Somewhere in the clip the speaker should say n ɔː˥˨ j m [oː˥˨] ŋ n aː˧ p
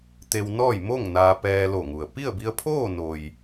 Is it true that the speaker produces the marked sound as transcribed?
no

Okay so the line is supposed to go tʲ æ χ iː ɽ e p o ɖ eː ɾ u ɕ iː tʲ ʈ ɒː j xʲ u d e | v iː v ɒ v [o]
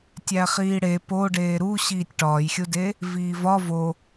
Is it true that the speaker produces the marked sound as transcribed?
yes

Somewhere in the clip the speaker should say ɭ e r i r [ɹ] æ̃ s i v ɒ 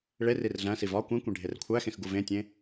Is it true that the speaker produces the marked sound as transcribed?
no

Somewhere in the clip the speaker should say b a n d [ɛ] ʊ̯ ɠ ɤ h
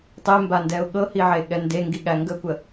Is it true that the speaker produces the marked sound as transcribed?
yes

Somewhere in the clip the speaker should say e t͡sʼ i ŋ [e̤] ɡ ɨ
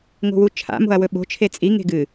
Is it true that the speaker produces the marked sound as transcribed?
yes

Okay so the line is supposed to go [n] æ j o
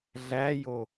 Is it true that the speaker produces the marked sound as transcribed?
no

